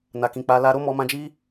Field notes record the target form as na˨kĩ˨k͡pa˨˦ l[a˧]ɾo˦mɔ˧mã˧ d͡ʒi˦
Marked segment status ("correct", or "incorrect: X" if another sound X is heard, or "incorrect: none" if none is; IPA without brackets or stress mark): correct